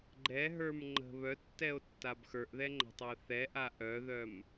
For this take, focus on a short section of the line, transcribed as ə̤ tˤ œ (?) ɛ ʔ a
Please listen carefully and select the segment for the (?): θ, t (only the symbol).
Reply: θ